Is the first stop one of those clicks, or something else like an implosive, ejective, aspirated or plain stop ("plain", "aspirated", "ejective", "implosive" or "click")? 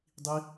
plain